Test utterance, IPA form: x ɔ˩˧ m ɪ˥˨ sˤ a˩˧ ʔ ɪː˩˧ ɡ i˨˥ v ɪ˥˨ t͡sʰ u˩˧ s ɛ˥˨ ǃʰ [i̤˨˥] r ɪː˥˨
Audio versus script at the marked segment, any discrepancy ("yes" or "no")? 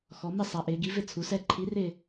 yes